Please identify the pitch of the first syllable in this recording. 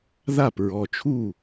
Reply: falling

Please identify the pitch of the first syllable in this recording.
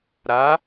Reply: rising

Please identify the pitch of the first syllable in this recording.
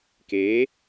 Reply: rising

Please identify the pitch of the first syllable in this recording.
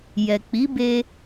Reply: low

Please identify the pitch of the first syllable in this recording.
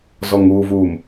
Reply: low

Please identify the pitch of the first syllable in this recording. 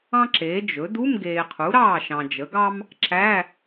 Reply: high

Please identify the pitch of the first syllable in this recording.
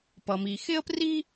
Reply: low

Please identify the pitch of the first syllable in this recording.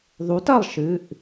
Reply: rising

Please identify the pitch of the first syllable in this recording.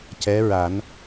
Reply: rising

